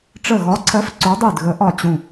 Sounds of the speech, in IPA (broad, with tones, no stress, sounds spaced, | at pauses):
ʈ͡ʂ ə˧˩ ɣ ɒ˨˥ ǀʰ ɜ˨˥ f ǀ o˨˥ dˤ y˧˩ d ɣ ə˨˥ ʔ ɒ˧˩ t͡ɕ ũ˧˩